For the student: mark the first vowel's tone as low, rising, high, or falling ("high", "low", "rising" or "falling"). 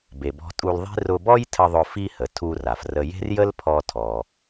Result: low